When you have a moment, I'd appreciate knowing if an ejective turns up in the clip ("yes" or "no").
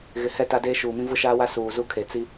no